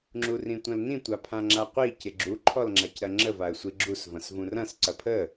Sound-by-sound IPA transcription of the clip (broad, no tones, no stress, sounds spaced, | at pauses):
ŋ͡ǁ u r ĩ tʷ ɐ̃ l n ĩ tʷ a pʰ ã ŋ͡ǁ a qʷ i c ɪ ɡ͡ǁ u ǃʰ ɔ l ŋ͡ǁ a c ɾ ɐ ŋ͡ǁ ə v a ə̯ sʷ i ɡ͡ǁ u s v ɐ̃ s v ũ r ɐ̃ s ǀ ɐ pʰ ə